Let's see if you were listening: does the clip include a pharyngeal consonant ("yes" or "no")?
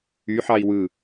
yes